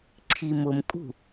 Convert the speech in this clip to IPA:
ǀʰ i m ʊ m kʼ ṳ

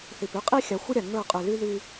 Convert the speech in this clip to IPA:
θ i˨ p y˦ qʼ i˦ xʲ a˨˦ xʷ ə˦ ɾʲ a˨ ŋ ə˞˦˨ qʼ ʉ˨ l y˦ ð y˦

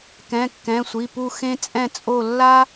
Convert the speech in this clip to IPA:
k ɛ̃˩˧˩ kː ɛ̃˩˧˩ sʷ i˩˧˩ p u˥˧ x ẽ˥ t͡sʼ ɛ̃˥˧ t͡sʼ o˥˧ lː a˥

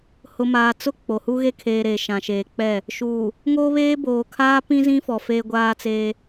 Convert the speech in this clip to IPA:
h ʊ˨ m aː˨ t͡s ʊ˦ k͡p o˨ h u˦ ɣ e˦ kʰ eː˨ ɾ eː˨ ʃ ã˨ ʃ eː˨ k͡p ɛ˦˨ | ʃ uː˨ | ŋ oː˦ β eː˦ b oː˨ kʰ aː˦ p ĩ˦ z ĩ˦ f ɔ˨ f eː˦ ɡʷ aː˦ t͡s eː˦

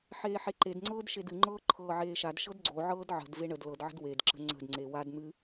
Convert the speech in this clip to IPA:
ħ eː ħ e ǃ e d ŋ͡ǀ ɤː d ʃ e d ɨ ŋ͡ǃ ɤː ǃʰ ɤː ʕ eː ʃ a d ʃ ɤ d ɡ͡ǀ o ʕ ɤː d ʕ ə̤ d v e ɳ ə d l ɤ d ʕ ə̤ d w e d ǁ ə̤ ŋ͡ǀ ə̤ d ŋ͡ǀ e w a d n̪ ɨ

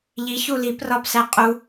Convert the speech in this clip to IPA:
ʎ i ç u l i p r ɒ p s æ qʼ u

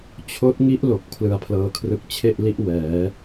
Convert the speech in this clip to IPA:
t͡ɕʰ oː˦˥ t̚ ŋ i˦˥ ʔ l o˨˩ k̚ pʰ l ɯ˧ a̯ pʰ l ɤː˧ kʰ r ɯ˦˥ k̚ t͡ɕʰ e˥˩ ʔ l i˦˥ ʔ w ɛː˩˦

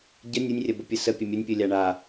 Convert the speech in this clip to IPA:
ɟ ə nʲ ɯ nʲ rʲ ɐ b ə pʲ ɯ s ə pʲ ə mʲ ə nʲ pʲ ɯ lʲ a ɳ a

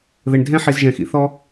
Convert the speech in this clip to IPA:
ð ɘ˨ ɳ dʱ ɛ̃˥ ħ i˨ z ʒ ɛ̃˩ x ḭ˨ θ ɔ˦

